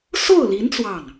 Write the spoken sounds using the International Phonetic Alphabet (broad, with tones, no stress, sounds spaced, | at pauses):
s o˥˩ ʊ̯ l i˧˥ n t͡s w ɑ˥˩ ŋ